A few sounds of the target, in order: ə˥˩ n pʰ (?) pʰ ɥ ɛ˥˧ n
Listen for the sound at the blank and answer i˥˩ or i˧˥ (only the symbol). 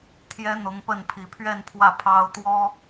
i˧˥